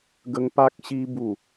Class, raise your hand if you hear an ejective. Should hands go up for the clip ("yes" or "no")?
no